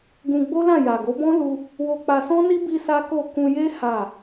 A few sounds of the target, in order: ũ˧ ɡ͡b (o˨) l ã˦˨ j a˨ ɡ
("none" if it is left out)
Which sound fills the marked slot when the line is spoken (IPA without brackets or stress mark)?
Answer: o˦